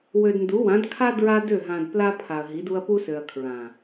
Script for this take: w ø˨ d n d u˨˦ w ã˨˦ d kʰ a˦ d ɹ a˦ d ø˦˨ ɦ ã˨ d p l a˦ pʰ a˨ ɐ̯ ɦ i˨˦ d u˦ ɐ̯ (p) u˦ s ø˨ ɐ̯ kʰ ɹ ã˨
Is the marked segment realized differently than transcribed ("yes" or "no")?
no